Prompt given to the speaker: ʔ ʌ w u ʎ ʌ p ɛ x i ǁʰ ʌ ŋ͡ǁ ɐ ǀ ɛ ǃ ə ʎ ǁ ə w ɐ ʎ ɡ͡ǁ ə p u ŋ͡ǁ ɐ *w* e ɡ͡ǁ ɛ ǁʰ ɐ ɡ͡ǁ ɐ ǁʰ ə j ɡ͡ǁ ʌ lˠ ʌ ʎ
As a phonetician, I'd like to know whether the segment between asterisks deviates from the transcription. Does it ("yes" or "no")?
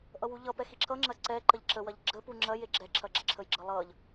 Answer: yes